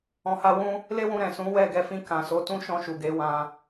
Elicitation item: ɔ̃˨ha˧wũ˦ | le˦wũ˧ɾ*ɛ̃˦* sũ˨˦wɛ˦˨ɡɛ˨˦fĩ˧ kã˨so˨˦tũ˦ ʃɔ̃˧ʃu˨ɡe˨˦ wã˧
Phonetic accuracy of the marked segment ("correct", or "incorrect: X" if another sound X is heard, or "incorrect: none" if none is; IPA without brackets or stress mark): incorrect: ɛ̃˨